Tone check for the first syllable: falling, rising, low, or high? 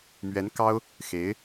rising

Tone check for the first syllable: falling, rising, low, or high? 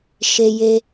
high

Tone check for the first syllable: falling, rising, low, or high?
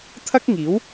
high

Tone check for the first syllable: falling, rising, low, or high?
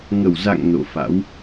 low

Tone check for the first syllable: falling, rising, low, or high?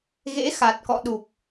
rising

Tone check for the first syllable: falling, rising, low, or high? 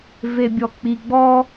low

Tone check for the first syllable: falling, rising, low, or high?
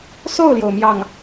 falling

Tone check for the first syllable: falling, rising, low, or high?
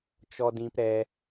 high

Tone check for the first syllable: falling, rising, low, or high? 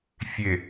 low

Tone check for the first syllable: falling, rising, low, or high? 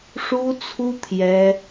high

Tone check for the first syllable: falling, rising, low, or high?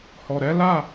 low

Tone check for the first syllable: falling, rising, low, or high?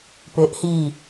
rising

